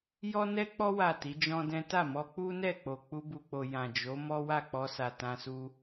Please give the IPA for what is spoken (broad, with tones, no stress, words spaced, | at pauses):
jɔ˦nɛ˦k͡pɔ˦ wa˦˨ti˨˦d͡ʒɔ̃˦dɛ̃˦ ta˦˨mɔ˧ k͡pu˦nɛ˦˨k͡po˨ k͡pu˧bu˨k͡po˨ jã˨d͡ʒo˨˦ mɔ˦wa˦˨k͡pɔ˧sa˨ tã˧su˧